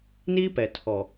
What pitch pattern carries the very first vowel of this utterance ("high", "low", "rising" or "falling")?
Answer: high